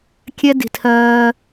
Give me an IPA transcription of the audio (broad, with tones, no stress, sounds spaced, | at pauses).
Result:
kʲ ɛ˦ d i̤˨ tʰ ɜː˦